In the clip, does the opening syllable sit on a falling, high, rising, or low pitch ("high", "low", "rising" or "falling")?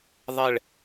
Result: falling